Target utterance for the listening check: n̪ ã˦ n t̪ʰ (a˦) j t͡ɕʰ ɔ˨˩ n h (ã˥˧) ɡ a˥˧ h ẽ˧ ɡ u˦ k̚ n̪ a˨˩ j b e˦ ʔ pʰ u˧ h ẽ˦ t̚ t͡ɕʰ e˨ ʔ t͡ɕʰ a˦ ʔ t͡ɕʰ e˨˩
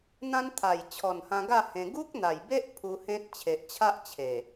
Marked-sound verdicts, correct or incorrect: incorrect: a˨˩, incorrect: ã˧

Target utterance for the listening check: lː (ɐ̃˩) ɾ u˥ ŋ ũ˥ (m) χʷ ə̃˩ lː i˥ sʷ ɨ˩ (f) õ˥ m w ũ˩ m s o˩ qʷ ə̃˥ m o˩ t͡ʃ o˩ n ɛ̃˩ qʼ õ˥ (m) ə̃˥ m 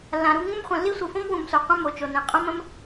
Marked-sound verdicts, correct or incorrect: incorrect: ã˩, correct, correct, correct

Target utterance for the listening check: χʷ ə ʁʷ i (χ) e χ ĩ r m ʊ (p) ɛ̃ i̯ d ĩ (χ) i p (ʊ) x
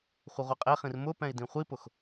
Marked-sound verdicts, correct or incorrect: incorrect: qʼ, correct, incorrect: χʷ, correct

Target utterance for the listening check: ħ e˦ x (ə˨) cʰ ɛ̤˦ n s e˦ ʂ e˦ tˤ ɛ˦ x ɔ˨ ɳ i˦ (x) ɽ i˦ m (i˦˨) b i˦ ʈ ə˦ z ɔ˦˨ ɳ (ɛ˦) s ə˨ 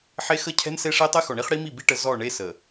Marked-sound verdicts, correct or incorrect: incorrect: ə˦, incorrect: χ, correct, incorrect: e˦

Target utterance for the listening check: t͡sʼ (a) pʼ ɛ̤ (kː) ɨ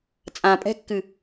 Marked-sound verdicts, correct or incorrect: incorrect: ã, correct

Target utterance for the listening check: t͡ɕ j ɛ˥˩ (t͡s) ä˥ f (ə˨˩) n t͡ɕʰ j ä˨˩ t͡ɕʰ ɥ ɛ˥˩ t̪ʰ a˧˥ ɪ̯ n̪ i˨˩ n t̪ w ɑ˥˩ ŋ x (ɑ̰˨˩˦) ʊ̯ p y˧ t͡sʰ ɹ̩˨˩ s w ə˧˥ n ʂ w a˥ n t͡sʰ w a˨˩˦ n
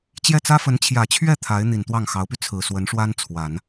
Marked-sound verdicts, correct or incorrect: correct, incorrect: ə˧˥, incorrect: ɑ˧˥

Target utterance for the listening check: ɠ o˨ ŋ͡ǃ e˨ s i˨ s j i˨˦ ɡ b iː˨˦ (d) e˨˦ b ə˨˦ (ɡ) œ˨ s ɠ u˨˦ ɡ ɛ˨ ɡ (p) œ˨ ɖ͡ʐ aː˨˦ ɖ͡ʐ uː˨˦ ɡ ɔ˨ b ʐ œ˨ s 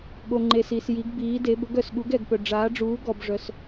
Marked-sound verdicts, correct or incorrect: correct, correct, correct

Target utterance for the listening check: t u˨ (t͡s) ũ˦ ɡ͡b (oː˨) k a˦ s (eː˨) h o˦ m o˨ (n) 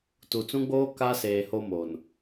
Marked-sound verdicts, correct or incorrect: correct, incorrect: oː˦, correct, correct

